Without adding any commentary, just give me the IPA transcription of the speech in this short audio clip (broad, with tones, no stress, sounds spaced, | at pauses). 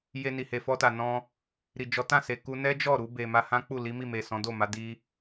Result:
j e˧ n i˨ h e˨ f ɔ˧ t a˨ n ɔ̃˧ | ɾ i˨ d͡ʒ ɔ˨˦ t ã˦˨ s e˨ k u˧ n ɛ˦ d͡ʒ ɔ˦˨ ɾ u˧ b e˨ m a˧ h ã˦ k͡p u˦˨ l i˨˦ m i˦˨ m e˨ s ɔ̃˨˦ d o˦˨ m a˨˦ d i˦